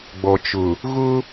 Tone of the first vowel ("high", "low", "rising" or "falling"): low